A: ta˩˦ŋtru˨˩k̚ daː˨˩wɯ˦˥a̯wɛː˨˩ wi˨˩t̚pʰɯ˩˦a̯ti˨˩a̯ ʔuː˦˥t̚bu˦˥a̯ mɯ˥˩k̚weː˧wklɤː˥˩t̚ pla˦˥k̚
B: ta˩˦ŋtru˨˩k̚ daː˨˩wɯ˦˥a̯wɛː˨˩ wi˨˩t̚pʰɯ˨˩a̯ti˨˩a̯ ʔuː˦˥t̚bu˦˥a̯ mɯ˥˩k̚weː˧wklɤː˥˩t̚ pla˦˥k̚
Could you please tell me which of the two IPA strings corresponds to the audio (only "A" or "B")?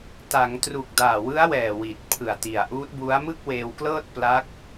B